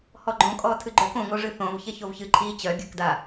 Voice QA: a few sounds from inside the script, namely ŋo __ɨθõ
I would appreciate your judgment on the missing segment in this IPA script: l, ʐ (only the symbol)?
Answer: ʐ